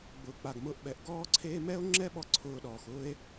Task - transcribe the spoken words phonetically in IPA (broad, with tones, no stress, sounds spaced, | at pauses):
ɡ͡b ʊː˨ k͡p a˨ ɡ m ʊː˧ ʔ ɓ ɛ˨ ʔ ɡ ɔː˦ ǀʰ eː˦ m ɛ˦ o̯ ŋ͡ǁ ɛ˦ ɓ ɔ˧ ǀʰ ʊː˧ ɗ ɔː˨ x ʊː˦ e̯